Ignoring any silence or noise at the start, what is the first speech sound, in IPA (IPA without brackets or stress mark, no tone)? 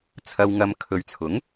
t͡sʰ